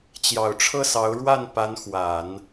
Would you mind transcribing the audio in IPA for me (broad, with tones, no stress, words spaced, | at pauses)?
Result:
t͡ɕjɑ˨˩ʊ̯ʈ͡ʂʰɤ˥˩sɑ˧˥ʊ̯ ɻwa˥˩npa˧˥nxwa˨˩˦n